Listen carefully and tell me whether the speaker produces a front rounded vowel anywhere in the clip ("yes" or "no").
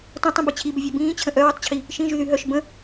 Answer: yes